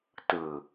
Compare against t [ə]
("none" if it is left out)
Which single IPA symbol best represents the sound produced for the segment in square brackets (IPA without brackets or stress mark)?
ɯ